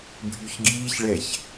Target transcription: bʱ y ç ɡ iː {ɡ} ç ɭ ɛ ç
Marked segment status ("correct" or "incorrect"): incorrect